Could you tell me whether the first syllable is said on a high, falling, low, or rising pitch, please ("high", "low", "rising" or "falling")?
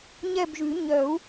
falling